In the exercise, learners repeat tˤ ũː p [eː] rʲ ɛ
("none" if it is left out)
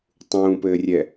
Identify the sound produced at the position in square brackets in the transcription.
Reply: ɘː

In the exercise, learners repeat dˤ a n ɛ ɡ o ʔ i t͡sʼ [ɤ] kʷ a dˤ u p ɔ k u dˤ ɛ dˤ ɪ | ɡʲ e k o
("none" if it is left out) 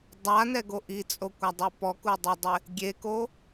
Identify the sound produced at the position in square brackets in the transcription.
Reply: o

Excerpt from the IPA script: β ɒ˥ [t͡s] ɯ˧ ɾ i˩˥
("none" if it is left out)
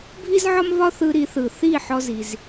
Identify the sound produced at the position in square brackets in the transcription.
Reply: θ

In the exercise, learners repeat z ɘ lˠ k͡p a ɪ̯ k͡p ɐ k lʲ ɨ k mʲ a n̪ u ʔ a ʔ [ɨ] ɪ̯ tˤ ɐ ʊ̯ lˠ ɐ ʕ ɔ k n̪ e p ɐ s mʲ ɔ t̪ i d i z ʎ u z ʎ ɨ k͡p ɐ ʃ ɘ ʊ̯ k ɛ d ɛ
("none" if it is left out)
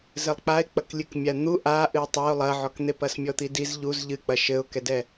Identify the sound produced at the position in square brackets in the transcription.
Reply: ɨ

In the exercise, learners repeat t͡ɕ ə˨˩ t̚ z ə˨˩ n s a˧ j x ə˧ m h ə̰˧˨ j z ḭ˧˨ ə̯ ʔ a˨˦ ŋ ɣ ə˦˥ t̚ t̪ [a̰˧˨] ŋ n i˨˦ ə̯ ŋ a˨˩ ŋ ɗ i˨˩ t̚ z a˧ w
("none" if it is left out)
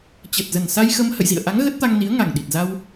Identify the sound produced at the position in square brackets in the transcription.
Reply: a˧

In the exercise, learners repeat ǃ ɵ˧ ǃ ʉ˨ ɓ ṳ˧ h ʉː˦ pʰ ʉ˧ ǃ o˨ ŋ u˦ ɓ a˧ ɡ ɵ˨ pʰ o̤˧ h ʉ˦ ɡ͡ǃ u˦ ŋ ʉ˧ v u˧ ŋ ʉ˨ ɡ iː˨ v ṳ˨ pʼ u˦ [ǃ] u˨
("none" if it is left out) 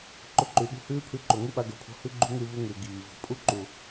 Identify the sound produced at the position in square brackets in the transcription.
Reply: ǃ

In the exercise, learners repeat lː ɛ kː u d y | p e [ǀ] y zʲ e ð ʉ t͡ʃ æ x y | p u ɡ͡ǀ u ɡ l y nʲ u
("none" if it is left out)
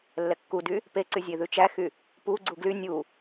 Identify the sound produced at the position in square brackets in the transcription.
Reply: ǀ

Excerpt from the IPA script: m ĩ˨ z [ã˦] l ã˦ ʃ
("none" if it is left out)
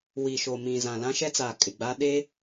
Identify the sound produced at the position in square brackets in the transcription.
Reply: ã˨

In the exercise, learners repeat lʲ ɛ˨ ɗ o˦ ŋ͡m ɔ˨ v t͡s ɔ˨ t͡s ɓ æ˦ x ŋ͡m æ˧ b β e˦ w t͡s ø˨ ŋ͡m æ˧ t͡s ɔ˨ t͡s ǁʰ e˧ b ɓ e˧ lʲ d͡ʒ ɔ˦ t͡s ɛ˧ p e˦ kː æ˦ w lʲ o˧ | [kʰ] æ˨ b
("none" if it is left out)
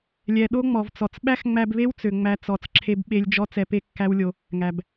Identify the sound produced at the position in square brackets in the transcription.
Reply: ŋ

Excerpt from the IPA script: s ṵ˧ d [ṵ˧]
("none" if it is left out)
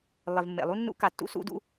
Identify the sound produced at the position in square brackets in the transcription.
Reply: ṵ˧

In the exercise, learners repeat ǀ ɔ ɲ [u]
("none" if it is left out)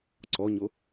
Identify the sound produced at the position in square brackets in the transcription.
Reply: o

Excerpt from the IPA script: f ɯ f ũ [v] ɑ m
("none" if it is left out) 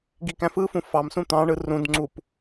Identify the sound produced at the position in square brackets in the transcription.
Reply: f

